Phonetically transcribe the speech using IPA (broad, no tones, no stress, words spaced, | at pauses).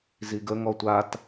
ziɡəŋɔ tʷat